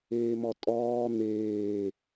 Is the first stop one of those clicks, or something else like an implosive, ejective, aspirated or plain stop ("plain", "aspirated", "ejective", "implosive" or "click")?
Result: ejective